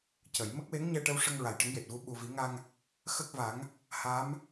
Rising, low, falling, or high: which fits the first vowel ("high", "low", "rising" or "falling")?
low